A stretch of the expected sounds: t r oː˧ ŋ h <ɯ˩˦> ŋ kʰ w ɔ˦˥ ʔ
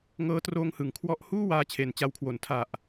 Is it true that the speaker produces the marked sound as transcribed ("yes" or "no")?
yes